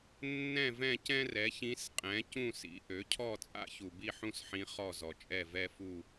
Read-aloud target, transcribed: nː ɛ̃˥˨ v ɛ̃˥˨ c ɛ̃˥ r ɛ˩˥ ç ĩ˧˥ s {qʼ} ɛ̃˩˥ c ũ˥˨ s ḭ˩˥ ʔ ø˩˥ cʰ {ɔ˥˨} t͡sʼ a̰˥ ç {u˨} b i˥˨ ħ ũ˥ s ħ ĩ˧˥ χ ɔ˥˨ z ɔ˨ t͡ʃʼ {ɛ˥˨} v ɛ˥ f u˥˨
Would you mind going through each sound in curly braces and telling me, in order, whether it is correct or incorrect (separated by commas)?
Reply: correct, correct, correct, correct